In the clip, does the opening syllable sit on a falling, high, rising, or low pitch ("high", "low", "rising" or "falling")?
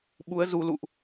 rising